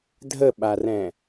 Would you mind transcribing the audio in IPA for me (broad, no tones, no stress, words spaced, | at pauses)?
dʱəɓarɛ̃